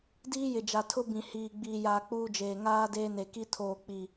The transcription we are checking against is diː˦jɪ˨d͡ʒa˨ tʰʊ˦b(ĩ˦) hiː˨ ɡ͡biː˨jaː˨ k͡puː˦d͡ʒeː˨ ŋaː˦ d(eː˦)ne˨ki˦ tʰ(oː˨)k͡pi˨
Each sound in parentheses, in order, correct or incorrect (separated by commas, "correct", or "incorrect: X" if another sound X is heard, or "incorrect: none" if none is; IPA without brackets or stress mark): incorrect: ĩ˨, correct, correct